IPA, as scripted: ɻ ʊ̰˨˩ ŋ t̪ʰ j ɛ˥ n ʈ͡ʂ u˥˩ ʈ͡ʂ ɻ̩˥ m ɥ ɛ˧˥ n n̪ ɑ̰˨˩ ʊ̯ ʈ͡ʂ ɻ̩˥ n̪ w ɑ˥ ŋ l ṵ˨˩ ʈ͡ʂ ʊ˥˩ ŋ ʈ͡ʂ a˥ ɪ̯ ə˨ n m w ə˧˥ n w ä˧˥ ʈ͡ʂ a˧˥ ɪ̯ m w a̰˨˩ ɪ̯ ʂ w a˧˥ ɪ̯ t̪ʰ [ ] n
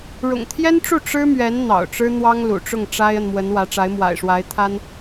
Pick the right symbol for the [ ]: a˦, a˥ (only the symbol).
a˥